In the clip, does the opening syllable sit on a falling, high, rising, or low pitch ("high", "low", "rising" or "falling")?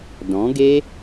rising